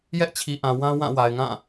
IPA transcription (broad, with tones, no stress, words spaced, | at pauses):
jɛ˦ʔt͡ɕʰi˨ ʔã˨ wã˦wã˦˨ wa˨ɪ̯ŋã˦˨